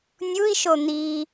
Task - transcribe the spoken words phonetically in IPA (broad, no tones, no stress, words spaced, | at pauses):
nʲui̯ʃo n̪i